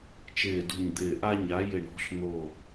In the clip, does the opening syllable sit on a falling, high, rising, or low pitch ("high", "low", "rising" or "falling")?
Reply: low